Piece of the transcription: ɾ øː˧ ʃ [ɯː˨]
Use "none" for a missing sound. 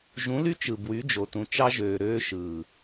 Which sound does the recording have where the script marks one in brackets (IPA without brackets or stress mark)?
ɯː˨